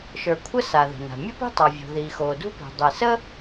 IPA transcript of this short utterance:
ʃ ə˞˩ kʷʰ ə˥ s a˩ ð ə̤˩ n a̤˩ mʲ ə˥ p i̤˥ tˤ a˩ vʲ o̤˩ ð iː˩ x oː˩ d ṳ˥ p i̤˩ dˤ i˩ s əː˥

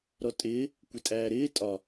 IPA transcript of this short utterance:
ɾ ɔ tʼ ɪː | kʷ ɪ tʼ æː ɾ ɪː tʼ ɒ

